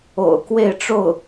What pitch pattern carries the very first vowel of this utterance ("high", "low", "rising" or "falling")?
low